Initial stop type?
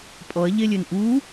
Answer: ejective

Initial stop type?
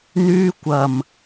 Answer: plain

